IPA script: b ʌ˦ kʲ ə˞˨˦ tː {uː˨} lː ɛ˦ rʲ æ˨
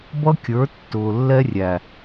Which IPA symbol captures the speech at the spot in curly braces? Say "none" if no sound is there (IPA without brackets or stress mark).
ʊː˨